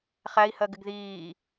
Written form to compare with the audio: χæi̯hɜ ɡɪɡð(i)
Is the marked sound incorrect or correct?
incorrect